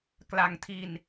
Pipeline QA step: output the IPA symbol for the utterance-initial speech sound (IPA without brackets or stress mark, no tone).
k